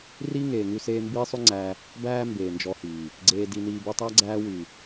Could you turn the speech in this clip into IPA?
r iː˦ ŋ eː˨ ŋ ʉ˧ s eː˧ m b iː˦ sˤ ʉ˦ ŋ͡ǀ æː˧ | b æː˦ m b eː˨ n d͡ʒ ɔ˧ h iː˨ | ɡ͡ǀ eː˧ d i˧ n iː˧ b u˧ tˤ æ˦ ɡ͡ǀ æː˧ w y˨

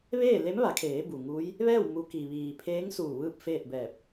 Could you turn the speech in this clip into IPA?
ʋ eː˥˨ l e˧˥ m ʋ a˩˧ kʰ eː˩˧ b u˩ ŋ uː˧˥ j | ʋ ɛː˥˨ w m u˧ k i˩ ʋ iː˩ pʰ eː˧˥ ŋ s uː˧˩ ʋ ɯː˥˨ p̚ f eː˥˨ t̚ b ɛː˧˩ p̚

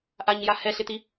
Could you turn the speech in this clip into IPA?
ʔ a ɲ j a h ɛ ɬ ɪ t̪ i

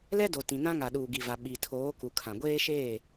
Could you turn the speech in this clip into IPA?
l ɛ˦ d o˨ t ĩ˨ n ã˦ ŋ a˨ ɗ uː˨ ɡ i˨ v a˨ ɓ i˨ tʰ oː˨˦ k u˨ kʰ ã˨ ɡʷ eː˦ ʃ eː˦˨

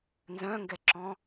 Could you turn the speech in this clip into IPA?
n z œ̃ ŋ ɡ ɛ ǁ ɔ̃

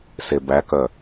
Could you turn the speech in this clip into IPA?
s e b æ k œ

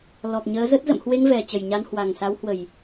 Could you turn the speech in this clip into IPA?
l ɔ˨˩ k̚ ɲ əː˨˦ z ə˦˥ t̚ z ə̰˧˨ m h w e˧ ŋ v ɛ˨˩ t͡ɕ ə˨˩ j ɲ a˧ n h w a˨˩ ŋ s a˨˦ w h w ə˨˩ j

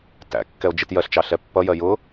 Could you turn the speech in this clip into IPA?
t æ̰ kː ɛ o̯ d͡ʒ i t j ɜ ɬ t͡ʃ ɑ ɬ ɛ pː ʌ j ɜ j ʊ

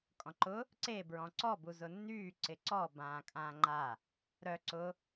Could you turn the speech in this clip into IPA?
kʼ ɔ̃ ǃ ʊ | ǀ e b ɹ ɔ̃ ǀ ɔ b u z ʊ nː yː ǀ ɪ ǀ ɔ b ãː kʼ ãː ŋ͡ǃ a | ɾ œ ǀ ʊ

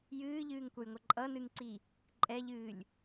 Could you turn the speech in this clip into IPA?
j ɨː ʎ ɨː ŋ kʷ ʌ j ŋʷ ʌ ǃʼ ʌ n ɨ ŋ ǀ i | ǃʼ ɛ ʎ ɨː lʲ

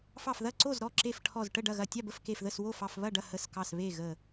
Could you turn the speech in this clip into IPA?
f ɑ˧˩ f ð ɐ˥˨ ǀ o˥˨ z ɾ ɔ˥˨ ǁ e˧˩ f ʈʰ ɔ˧˩ z ʈ ə˥˨ ɖ ɐ˥˨ ɣ ɐ˧˩ tʲ ɑ˥˨ b ə˥˨ f k e˧˩ f ð ə˥˨ s w o˥˨ f ɑ˥˨ f β ɐ˥˨ ɖ ɐ˥˨ h ə˧˩ s k ɑ˧˩ s β e˥˨ ɣ ə˧˩

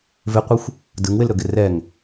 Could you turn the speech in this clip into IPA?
v ɪ qʷ ɯ xʷ | d ɯ ŋ w ɪ l ɾ ɵ ɡ ɪ r ɛ ŋ

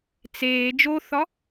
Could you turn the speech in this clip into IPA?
t͡s eː d͡ʒ o θ ɒ

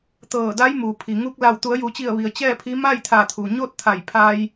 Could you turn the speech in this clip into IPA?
t̪ ɤː˧˩ d a˧˥ j m u˩ pʰ i˩ ŋ u˧ k̚ l a˧˩ w t̪ u˩˧ ə̯ j u˩˧ t͡ɕ i˧˩ ə̯ ʋ i˩ ə̯ t͡ɕ ɛː˥˨ pʰ i˧˥ m a˥˨ j t̪ʰ a˧˩ t̪ʰ u˩ ɲ o˥˨ t̚ t̪ʰ a˧˩ j pʰ a˧ j

